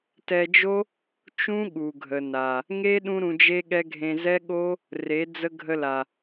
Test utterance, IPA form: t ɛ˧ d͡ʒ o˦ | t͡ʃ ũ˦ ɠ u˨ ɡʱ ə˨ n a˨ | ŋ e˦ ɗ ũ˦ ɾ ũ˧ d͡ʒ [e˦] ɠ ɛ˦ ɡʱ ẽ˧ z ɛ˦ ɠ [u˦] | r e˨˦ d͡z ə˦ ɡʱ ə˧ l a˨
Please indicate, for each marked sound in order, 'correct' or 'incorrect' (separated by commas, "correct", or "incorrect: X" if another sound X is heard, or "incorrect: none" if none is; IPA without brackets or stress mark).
correct, incorrect: o˦